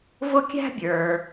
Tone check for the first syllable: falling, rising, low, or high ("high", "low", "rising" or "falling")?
high